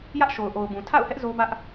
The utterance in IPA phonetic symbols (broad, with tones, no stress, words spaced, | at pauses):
jä˦ʔʃo˨ʊ̯ʔo˨ʊ̯bũ˨ tʰa̰˦˨ʊ̯hɛ˦ʔ zo˦bä˦ʔ